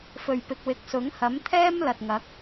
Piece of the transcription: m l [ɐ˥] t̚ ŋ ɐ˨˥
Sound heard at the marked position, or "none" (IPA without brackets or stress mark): ɐ˨